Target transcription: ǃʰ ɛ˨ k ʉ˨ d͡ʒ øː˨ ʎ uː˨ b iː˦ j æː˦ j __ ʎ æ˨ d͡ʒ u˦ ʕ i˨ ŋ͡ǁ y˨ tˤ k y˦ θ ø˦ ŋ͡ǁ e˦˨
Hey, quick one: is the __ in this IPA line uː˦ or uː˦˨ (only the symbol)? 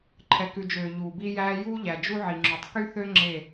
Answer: uː˦